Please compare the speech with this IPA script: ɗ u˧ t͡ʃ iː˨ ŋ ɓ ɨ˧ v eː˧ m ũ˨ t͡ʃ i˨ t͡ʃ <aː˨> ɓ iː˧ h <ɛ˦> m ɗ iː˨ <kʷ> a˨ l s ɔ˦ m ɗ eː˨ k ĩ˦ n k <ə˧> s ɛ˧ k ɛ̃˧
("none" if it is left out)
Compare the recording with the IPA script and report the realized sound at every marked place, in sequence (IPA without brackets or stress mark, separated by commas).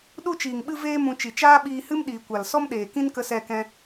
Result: aː˦, ɨ˦, kʷ, ə˧